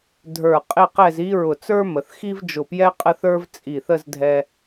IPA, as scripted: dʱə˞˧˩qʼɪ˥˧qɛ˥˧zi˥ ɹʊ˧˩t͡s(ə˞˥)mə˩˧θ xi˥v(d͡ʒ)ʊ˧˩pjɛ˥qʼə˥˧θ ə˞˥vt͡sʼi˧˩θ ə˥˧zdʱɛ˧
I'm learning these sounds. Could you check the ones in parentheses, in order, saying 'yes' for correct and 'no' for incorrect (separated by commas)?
yes, yes